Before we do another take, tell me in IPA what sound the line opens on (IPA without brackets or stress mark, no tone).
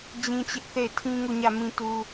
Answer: d͡ʑ